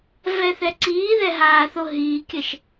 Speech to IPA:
v ɛ θ ɛ ǀ iː ð ɛ ɦ aː θ o ɦ iː kʲ ɘ ʃ

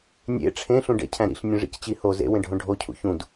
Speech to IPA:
nʲ ḛ ʈ͡ʂʰ ẽ ɬ ũ ɖ ḛ cʰ æ̃ ɾ ḭ ɬ nʲ õ ʐ ḭ c t͡ɕ i h o z ḛ w ẽ ɖʱ õ ɖʱ o cʰ ṵ ç ũ d

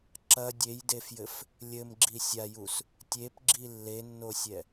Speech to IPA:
ǁ ɐ dʲ e j d e f j ɘ f | lʲ ɘ m ɡ͡ǁ i sʲ a j u s | tʲ e p ɡ͡ǁ i lː e nː o sʲ ɛ

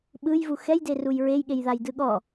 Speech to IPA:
ɓ ɯ j v u x ɛ j d e r u j ɹ e j ɠ e j ð a j d ɯ ɠ ɔ

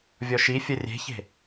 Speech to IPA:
vʲ ɔ ʃ i fʲ ə rʲ e̤ ç e̤

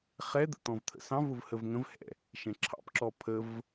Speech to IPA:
χ ɛ d̪ ə̰ t̪ ɔ̃ v t̪ʰ ə̰ s ɑ̃ v ʊ v h ə v ŋ ə̃ v h ɛ̰ | ʃ ɛ̃ ǁʰ ɑ̰ p ǁ ɔ pʰ ə v

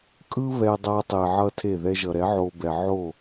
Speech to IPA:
kʼ ɯ˦ β ɛ˧ dˤ a˧ tˤ e˨ ʕ ʌ˦ tʰ e˦˨ ð ɛ˧ ʒ ʌ˨ ɾ ɛ˨˦ ʕ o˧ b ɛ˨ ʕ o˦˨

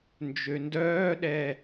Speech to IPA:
n d͡ʒ ø n d œː ɗ ɛ

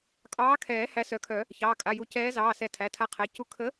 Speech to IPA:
kʼ ɑː˨˥ kʰ ɛː˨˩˦ h æ˨˥ s œ˨˩˦ kʰ œ˨˩˦ | ç ɑː˩˧˩ kʼ a˩˧˩ j u˨˩˦ c ɛː˨˥ z ɑː˩˧˩ s ɛ˨˩˦ tʰ æ˩˧˩ tʰ a˨˥ qʰ æ˩˧˩ c u˨˥ kʰ ə˨˥

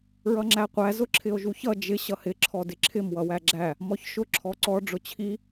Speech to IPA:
ɹ ʌ ŋ͡ǁ æ qʷ æ z ʊ ǁʰ ɪ o̯ ʒ u ç ʌ d͡ʒ ɪ ɕ ʌ h ɪ ǁʰ ɔ d ɪ ǁʰ ɪ m w ʌ w æ ɡ͡ǁ æ | m ɔ ç ʃ ʊ ǁʰ ɔ ǀ ɔ ɖ͡ʐ ʊ t͡ɕʰ i

